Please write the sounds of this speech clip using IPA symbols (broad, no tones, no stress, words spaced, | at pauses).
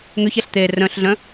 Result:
ŋøçɛɬ t̪e rœ̃ɬɮœ̃